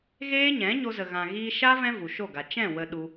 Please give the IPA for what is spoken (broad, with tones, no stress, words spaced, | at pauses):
ɣeː˦ɲɛ̃˨˦ ɲo˧zə˨ɣã˨ ɣiː˧ʃa˦ vɛ̃˦vu˨ʃo˦˨ɡa˨ t͡ʃɛ̃˦˨ wə˧ɗu˧